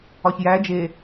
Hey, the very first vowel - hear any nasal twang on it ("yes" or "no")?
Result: no